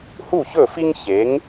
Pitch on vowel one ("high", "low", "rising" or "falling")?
falling